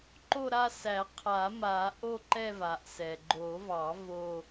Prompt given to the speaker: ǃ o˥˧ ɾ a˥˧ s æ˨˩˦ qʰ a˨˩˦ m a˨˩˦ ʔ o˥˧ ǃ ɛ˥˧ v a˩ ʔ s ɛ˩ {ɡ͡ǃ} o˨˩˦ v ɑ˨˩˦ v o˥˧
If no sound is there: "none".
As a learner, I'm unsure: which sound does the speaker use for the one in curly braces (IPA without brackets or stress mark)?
ɡ͡ǃ